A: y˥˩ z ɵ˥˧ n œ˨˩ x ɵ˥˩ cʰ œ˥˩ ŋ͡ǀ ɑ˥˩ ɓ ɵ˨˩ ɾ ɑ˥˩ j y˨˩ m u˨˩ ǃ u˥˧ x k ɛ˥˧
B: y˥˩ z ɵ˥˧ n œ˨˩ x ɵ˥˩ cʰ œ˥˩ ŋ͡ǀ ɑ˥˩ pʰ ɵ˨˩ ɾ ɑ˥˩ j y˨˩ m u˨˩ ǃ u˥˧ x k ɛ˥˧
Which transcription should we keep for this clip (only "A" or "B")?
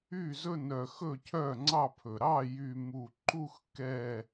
B